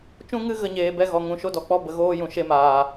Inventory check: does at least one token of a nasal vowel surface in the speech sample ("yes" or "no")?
yes